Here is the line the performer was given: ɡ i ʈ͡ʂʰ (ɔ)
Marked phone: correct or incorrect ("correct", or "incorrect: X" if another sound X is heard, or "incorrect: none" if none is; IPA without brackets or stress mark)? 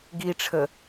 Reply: incorrect: ə